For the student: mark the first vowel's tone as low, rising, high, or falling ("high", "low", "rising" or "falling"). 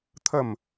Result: falling